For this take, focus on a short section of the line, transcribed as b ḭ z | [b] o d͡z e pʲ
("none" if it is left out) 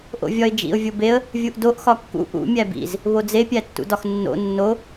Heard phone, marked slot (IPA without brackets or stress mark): β